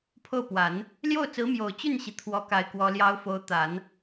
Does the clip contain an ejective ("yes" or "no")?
no